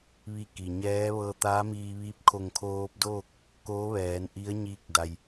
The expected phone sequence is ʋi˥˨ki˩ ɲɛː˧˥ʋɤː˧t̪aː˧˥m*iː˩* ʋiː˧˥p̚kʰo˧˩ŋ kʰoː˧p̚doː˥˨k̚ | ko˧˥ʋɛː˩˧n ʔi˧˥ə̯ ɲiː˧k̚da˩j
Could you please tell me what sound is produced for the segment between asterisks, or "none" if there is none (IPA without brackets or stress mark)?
iː˧